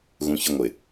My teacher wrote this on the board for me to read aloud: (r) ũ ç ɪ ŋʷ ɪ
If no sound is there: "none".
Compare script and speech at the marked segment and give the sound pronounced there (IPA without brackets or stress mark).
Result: ɣ